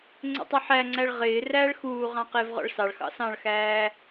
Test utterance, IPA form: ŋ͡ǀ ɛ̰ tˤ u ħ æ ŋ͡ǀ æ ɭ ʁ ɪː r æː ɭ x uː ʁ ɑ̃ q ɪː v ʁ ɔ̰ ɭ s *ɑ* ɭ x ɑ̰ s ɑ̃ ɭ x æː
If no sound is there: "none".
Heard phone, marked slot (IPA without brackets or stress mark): ɑ